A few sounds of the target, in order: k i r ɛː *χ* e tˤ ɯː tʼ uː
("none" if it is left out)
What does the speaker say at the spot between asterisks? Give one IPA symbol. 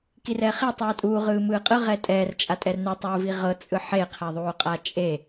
χ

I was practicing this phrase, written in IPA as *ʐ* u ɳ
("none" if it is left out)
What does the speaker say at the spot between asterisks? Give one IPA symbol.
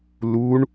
l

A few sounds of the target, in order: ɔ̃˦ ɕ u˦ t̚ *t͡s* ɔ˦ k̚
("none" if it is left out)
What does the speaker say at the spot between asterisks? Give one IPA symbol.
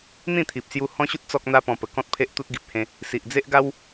t͡s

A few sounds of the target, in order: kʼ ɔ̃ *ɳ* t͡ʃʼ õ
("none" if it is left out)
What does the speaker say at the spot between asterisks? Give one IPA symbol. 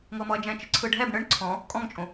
ŋ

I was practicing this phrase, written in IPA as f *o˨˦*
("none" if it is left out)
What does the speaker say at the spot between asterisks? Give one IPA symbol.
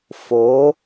o˨˦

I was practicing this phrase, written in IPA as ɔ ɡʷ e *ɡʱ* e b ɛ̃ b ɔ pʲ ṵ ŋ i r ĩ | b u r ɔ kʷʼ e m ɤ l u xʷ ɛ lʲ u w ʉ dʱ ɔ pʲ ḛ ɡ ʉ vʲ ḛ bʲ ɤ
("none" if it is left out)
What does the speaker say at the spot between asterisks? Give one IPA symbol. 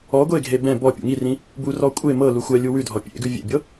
ɡʱ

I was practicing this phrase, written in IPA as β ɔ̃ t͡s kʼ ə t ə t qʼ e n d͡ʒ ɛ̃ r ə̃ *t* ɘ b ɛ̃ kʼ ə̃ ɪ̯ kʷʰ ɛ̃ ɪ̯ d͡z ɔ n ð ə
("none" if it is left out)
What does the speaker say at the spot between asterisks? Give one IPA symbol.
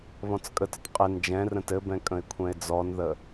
t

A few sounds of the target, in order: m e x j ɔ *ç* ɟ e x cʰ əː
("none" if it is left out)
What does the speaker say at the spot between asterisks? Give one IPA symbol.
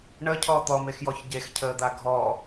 ç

